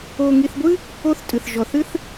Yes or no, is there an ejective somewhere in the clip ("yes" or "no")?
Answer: yes